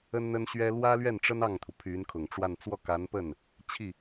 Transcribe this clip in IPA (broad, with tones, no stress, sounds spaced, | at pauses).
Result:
ə˥ n n̪ ə˥ n ɕ ɥ ɛ˥ l w ä˥ l ɥ ɛ˥˩ n ʈ͡ʂ ə˥ n ɑ˥˩ ŋ t̪ʰ u˩ pʰ y˧˥ n kʰ ʊ˨˩ ŋ ʈ͡ʂ w a˥˧ n t͡s w ɔ˥˩ k a˧˥ n p ə˥˩ n | t͡ɕʰ i˥˩